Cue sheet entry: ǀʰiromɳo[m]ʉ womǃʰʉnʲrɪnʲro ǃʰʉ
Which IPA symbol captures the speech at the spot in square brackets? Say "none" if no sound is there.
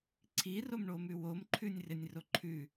m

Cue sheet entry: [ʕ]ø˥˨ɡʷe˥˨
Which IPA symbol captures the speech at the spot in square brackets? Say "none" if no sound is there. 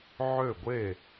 ʕ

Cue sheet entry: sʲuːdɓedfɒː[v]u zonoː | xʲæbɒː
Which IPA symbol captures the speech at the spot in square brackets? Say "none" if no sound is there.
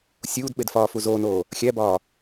f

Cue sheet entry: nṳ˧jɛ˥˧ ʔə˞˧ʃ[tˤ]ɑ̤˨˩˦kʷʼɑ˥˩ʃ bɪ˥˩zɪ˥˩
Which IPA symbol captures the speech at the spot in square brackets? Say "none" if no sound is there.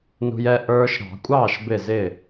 ɾ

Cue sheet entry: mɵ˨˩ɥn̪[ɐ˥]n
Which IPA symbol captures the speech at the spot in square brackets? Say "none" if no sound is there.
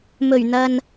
ɐ˨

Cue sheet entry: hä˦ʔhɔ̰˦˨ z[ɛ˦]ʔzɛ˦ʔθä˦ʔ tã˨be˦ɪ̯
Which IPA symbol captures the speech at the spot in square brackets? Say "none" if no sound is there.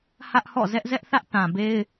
ɛ˦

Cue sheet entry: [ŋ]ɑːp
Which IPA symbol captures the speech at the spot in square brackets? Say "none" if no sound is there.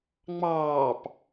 ŋ͡m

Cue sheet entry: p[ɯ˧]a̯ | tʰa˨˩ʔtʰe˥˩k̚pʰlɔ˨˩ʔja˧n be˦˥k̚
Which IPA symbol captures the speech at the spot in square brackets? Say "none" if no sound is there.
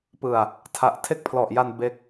ɯ˨˩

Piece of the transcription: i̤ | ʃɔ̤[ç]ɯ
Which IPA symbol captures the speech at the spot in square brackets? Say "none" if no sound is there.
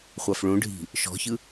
ç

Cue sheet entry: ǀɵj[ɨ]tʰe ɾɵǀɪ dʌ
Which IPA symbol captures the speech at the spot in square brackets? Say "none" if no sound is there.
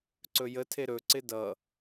ə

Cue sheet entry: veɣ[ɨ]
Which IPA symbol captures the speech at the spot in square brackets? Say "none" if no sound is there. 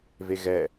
ɛ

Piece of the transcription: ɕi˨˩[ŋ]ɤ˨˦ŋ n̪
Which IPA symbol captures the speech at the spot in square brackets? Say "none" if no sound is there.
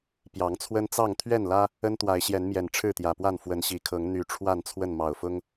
kʰ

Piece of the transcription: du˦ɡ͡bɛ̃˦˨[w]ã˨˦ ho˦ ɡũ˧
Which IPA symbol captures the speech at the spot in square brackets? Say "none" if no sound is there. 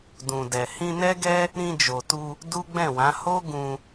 w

